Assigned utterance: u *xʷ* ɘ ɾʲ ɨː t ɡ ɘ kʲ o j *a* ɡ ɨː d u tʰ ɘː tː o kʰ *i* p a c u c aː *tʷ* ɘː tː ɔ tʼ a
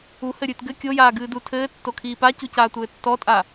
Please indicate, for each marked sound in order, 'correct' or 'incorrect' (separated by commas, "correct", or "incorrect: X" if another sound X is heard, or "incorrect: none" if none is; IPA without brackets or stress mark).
incorrect: h, incorrect: aː, incorrect: iː, correct